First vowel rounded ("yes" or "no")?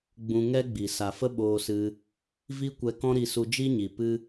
yes